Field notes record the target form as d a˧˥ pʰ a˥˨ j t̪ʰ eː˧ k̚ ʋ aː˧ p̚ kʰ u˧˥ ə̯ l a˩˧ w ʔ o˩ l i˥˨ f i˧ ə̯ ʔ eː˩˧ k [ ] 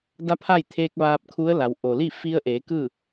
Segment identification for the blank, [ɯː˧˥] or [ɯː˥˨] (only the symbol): ɯː˥˨